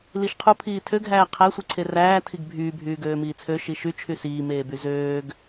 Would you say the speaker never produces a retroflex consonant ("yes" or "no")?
yes